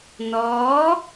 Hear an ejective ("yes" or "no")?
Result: no